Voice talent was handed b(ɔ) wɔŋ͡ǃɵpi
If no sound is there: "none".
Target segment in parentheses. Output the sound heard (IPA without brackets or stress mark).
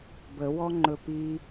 ə